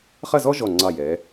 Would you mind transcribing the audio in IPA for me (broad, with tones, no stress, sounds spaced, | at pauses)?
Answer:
χ ɐ˥˧ z ɔ˥ ʒ ɔ˧˩ ŋ͡ǀ ɑ˧˩ j ɛː˩˧